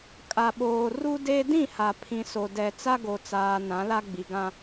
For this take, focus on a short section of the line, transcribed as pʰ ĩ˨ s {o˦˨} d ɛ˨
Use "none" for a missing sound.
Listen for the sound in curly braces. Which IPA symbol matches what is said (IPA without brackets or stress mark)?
o˨